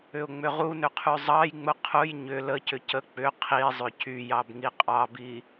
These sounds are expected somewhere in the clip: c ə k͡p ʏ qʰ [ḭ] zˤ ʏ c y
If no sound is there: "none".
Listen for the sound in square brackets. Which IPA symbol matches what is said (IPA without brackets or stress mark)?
i